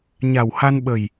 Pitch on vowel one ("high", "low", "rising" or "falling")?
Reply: low